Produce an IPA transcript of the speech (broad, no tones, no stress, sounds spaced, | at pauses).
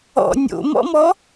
ɔ̰ nʲ o̰ m ɔ̰ m ɔ